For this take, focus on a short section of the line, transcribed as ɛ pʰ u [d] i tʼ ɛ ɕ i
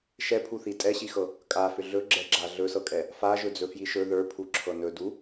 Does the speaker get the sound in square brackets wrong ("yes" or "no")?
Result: yes